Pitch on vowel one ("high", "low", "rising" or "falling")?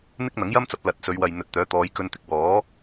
high